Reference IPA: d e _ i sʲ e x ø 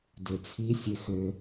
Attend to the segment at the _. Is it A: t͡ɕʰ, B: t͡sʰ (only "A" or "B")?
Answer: B